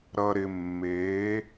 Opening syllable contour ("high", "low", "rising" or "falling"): low